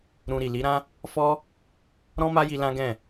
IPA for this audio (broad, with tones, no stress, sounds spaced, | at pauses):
ɾ ũ˧ ɾ i˨ l i˨˦ ɾ ã˦ | f ɔ˦ | ɾ ɔ̃˦ m a˦ j i˧ l ã˦ ɡ ɛ̃˦˨